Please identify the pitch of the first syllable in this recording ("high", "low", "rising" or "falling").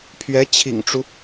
rising